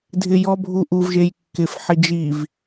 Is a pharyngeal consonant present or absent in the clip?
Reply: present